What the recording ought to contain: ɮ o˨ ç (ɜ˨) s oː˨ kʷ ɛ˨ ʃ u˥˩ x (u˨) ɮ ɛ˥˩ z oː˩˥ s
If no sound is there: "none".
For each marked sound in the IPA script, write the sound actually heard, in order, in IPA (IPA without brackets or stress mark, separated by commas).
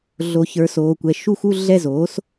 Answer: ə˞˨, u˥˧